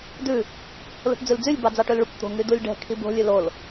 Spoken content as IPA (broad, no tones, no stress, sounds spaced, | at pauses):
d ʉ | l o̤ ʈ d͡z ʉ l d͡z y lʲ b ɑ d͡z ɑ ʈ ø l ɭ y kʷ t̪ o̤ ŋ y d u lʲ ɖ ɛ̤ kʰ i b o̤ lʲ ʉ l o l